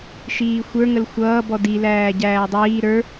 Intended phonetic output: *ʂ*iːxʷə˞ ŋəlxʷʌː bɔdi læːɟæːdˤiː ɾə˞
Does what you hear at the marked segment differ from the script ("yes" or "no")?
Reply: yes